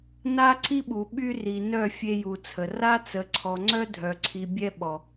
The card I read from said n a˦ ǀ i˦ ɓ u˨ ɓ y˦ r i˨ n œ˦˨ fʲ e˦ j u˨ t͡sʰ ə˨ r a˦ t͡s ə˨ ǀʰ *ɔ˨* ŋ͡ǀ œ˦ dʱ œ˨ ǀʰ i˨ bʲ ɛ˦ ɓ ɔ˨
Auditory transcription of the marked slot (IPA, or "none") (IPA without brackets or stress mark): ɔ˨